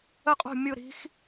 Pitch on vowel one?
falling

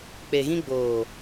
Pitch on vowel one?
low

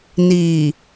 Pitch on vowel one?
low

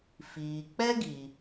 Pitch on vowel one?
low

